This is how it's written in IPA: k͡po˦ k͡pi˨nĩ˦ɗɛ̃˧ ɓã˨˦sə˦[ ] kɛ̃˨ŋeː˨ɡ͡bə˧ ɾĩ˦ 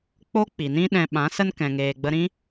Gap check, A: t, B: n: B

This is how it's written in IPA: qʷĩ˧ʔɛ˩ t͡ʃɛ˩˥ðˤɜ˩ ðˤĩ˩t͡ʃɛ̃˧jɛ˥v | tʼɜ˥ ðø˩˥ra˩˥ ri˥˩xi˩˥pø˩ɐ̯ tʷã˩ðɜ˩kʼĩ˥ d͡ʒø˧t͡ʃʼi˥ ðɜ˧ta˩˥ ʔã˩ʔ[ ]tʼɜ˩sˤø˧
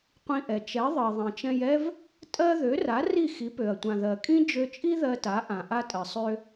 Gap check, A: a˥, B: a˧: B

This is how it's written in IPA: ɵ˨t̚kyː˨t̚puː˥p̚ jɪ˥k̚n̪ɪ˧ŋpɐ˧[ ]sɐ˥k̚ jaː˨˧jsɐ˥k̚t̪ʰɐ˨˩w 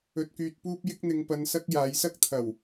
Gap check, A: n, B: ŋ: A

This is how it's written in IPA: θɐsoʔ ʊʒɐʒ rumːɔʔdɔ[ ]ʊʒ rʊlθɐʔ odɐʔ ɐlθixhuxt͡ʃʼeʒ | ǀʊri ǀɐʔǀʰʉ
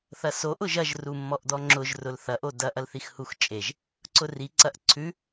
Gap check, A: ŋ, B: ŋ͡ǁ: B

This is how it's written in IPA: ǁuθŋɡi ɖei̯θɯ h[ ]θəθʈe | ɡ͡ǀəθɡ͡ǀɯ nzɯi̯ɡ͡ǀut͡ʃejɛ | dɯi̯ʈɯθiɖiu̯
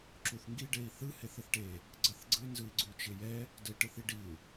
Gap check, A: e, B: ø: A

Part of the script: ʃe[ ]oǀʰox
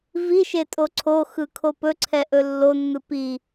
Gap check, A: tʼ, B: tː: A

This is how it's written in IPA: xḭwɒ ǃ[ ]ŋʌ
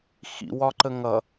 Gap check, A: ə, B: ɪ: A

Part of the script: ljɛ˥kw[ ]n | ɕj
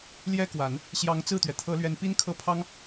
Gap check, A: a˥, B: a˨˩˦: B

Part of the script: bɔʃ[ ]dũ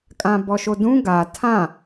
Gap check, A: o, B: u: A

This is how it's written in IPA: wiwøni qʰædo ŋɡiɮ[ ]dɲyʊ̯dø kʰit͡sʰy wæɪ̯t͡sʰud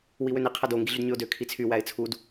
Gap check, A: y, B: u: A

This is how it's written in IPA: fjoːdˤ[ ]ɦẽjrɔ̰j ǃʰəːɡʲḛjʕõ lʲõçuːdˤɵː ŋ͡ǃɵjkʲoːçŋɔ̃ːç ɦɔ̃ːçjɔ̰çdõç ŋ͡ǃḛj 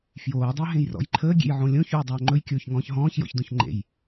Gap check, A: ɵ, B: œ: B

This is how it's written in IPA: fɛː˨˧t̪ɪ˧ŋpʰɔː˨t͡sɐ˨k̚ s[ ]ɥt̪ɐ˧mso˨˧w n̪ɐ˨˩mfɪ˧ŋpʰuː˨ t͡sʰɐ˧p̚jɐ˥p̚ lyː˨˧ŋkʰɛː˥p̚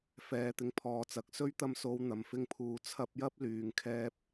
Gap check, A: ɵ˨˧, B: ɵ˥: B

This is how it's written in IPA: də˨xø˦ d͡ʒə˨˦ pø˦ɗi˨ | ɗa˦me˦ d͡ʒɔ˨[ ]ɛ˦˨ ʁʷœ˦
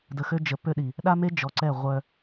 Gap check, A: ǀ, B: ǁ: A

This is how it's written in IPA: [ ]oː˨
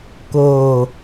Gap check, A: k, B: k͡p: A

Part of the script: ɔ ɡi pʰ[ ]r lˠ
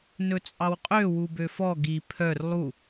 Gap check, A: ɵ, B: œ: B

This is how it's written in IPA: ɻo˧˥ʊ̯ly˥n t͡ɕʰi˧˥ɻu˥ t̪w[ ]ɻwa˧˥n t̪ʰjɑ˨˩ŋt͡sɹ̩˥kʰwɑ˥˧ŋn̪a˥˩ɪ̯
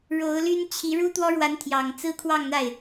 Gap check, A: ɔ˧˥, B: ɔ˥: B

